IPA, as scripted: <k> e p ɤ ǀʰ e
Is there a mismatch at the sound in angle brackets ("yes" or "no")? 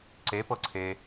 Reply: yes